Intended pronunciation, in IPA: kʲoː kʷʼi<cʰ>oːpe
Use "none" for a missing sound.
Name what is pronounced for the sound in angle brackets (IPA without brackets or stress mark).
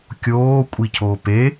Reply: cʰ